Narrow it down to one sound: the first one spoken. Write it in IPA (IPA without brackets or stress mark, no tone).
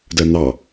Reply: d